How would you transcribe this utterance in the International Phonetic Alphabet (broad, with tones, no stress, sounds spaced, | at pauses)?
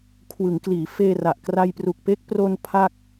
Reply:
kʰ w ɯ˩˦ ŋ k l iː˩˦ f eː˧ r a˨˩ ʔ k r a˧ j p r u˨˩ k̚ p e˦˥ k̚ p r o˧ n pʰ a˥˩ k̚